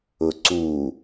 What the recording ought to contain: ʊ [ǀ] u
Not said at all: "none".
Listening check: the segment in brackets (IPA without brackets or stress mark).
ǀ